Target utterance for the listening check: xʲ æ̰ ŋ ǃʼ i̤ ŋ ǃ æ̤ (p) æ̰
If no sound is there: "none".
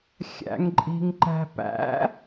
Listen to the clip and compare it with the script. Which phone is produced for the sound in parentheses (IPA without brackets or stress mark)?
p